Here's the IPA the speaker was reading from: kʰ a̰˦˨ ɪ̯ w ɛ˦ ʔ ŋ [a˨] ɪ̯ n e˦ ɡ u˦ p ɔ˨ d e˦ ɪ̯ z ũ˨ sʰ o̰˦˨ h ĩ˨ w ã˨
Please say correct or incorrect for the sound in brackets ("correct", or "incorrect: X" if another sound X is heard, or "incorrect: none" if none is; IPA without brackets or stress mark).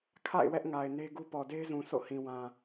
correct